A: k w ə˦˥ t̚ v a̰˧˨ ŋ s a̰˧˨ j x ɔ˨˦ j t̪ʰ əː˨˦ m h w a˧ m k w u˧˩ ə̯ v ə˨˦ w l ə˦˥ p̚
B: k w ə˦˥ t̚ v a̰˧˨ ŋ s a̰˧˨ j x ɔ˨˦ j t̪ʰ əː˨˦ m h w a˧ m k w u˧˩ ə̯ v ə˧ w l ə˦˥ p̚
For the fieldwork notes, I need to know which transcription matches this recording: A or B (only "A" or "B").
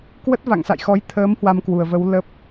A